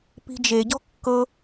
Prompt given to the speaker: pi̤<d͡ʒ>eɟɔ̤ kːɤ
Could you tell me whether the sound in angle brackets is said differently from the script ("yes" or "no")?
no